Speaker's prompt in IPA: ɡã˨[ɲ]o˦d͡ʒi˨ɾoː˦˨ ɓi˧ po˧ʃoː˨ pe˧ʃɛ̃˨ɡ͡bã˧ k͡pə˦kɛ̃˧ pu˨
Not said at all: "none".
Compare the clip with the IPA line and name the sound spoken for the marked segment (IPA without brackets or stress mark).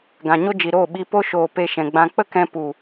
ɲ